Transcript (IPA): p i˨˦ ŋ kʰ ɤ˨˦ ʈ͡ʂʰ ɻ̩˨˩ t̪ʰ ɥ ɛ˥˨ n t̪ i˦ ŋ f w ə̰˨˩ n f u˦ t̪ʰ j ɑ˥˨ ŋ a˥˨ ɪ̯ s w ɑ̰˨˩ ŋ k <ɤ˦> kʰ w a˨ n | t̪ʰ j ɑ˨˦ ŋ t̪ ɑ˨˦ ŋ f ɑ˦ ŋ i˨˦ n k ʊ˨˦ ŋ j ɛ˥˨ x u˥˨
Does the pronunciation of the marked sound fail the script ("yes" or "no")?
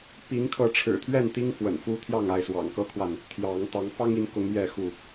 no